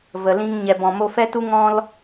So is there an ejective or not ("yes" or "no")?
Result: no